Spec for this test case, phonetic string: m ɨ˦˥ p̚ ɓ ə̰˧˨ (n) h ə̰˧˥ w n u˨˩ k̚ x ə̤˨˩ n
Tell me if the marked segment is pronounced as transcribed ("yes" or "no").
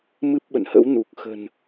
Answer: yes